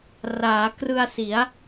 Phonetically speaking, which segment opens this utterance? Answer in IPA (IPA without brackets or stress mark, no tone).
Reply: r